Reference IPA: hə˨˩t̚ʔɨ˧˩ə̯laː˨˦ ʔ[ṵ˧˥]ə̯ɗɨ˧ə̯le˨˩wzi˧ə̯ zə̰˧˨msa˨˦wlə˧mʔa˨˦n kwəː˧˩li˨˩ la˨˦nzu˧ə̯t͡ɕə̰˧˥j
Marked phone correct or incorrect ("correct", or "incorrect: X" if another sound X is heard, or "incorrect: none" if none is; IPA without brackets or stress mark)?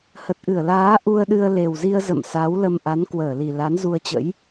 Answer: incorrect: u˧